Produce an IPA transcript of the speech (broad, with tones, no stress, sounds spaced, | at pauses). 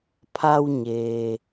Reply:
pʰ a˧ w ɲ eː˩